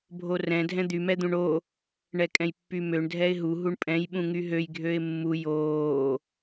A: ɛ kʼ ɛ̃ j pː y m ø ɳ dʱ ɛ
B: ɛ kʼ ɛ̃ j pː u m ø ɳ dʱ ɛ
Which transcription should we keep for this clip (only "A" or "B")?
A